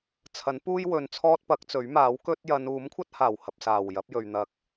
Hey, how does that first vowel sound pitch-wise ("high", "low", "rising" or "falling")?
rising